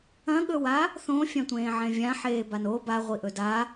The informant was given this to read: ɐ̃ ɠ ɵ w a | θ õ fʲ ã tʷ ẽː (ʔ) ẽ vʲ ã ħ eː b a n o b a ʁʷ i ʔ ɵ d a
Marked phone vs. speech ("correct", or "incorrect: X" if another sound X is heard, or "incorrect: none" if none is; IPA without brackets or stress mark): incorrect: ʕ